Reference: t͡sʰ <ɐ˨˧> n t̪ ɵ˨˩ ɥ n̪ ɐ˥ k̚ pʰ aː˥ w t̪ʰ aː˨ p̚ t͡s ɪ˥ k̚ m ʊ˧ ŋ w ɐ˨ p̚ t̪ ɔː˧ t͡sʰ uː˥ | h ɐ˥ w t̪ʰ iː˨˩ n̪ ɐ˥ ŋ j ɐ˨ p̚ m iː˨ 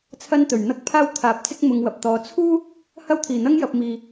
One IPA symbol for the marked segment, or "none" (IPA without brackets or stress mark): ɐ˥